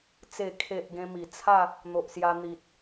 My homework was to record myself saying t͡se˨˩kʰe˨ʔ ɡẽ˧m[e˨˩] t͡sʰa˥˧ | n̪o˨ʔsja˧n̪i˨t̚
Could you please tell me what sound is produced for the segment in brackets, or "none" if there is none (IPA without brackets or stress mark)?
i˨˩